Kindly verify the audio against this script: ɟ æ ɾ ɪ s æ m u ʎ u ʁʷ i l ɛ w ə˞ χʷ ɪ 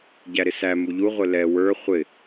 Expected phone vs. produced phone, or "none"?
i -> ɪ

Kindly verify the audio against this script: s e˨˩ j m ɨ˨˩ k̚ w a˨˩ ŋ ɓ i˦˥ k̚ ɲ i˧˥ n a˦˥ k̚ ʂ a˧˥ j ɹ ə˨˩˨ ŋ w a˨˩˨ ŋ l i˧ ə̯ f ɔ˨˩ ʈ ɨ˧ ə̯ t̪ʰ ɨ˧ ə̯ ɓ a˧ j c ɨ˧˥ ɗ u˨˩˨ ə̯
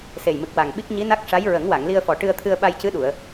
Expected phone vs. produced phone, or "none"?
ə˨˩˨ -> ə˨˩˦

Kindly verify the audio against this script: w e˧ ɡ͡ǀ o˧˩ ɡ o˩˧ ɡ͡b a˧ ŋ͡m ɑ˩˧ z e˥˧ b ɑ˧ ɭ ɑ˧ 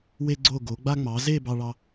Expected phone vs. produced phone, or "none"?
none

